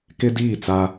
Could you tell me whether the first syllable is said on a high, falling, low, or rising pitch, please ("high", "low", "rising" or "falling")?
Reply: high